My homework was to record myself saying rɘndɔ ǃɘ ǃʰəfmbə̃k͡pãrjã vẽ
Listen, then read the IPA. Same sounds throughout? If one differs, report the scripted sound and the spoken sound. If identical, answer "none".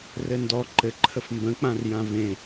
none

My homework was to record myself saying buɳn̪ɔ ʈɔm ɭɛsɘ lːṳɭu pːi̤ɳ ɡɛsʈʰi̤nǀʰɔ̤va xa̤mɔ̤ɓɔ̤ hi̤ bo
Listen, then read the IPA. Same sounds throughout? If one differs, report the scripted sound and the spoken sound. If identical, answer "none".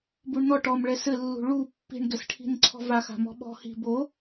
none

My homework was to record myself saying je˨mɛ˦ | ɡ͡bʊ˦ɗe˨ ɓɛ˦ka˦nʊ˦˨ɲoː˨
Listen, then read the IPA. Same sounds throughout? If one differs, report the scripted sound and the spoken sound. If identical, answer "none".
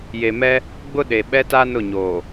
k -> t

